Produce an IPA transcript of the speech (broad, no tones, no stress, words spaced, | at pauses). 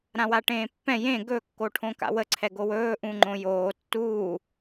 ɾãwaʈẽːpːɛ̃ jẽ ɡɵkːoʈʰõka̰ wəǀʰɛ ɡowɵː ʔũŋ͡ǃõjoː tːuː